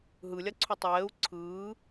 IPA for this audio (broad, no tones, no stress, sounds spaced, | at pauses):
ɦ ɯ lʲ a ǀʰ u tˤ ɛː u̯ ǀʰ ɯː